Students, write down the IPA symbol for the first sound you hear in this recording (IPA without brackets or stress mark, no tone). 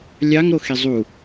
lʲ